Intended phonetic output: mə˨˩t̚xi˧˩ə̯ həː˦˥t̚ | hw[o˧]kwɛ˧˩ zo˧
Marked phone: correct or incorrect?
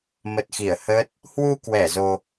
incorrect